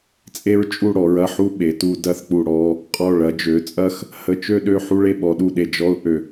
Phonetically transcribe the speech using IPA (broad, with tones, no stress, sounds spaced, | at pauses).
t͡sʼ e˥ ɹ t͡ʃʼ u˥˧ ɽ ɔ˩˧ ɹ ɐ˧˩ ħ u˥˧ ɓ e˩˧ t u˧ d ɐ˥˧ θ k͡p u˧˩ ɽ ɔ˥˧ | qʼ ɔ˧˩ ɭ ɐ˩˧ d͡ʒ ø˩˧ t͡sʼ ɐ˥˧ x | h ə˧˩ t͡ʃ ø˥˧ ɗ ø˥˧ ħ u˥ ɭ e˥˧ ɓ ɔ˩˧ ɗ u˧˩ ɗ e˧˩ d͡ʒ ɔ˥˧ ʊ̯ ʔ ø˧˩